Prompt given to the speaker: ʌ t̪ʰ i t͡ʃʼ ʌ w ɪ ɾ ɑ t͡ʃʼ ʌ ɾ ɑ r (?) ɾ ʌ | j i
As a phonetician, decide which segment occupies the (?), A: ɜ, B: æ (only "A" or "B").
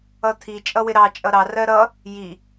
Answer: A